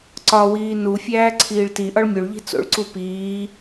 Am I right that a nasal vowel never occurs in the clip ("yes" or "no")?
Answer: yes